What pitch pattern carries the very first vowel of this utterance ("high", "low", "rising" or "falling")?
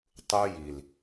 high